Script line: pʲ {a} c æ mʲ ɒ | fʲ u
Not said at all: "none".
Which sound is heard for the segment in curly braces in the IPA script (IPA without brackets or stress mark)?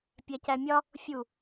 æ